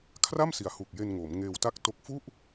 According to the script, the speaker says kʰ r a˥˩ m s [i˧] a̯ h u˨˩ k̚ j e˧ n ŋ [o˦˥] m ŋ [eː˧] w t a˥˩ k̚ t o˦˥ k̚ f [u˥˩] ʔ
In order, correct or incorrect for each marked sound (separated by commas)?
incorrect, incorrect, correct, correct